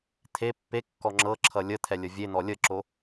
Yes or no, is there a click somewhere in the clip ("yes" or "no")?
yes